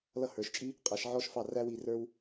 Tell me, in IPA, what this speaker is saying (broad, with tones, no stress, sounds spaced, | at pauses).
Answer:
l ʌ˦˨ h ə˞˩˧ ʃ t͡ʃʼ i˥ | qʼ æ˩˧ ʃ ʕ ɔ˥ ʃ f ɑ˦˨ r æ˥ w i˦˨ r ə˞˥ w